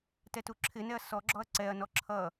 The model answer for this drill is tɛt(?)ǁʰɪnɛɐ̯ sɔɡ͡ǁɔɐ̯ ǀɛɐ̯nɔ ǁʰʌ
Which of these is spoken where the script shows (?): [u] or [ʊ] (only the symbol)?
u